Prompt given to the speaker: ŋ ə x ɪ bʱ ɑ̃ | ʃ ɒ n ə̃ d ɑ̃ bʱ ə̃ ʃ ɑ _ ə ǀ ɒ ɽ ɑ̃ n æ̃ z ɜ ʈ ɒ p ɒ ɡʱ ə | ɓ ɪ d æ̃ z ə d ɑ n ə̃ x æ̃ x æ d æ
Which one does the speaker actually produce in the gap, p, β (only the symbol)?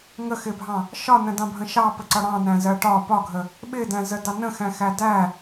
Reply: p